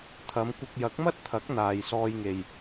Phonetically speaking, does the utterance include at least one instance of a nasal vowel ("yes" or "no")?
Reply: no